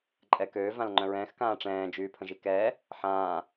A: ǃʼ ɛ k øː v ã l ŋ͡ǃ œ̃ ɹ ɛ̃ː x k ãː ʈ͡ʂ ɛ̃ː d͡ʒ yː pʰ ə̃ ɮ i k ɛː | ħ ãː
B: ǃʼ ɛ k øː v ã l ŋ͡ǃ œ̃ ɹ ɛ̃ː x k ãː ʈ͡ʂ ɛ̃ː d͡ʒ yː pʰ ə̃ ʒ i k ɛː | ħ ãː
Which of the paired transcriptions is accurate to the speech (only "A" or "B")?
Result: B